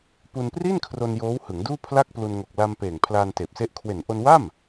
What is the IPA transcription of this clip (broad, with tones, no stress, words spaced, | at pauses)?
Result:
pu˧npri˥˩n kʰro˧njoː˦˥whɯ˩˦ŋ duː˥˩pʰla˥˩k̚plu˧n ŋo˨˩k̚la˧mpeː˨˩ŋ pʰlaː˧nteː˨˩p̚se˦˥ʔ kʰwe˨˩nʔo˧nwa˥˩m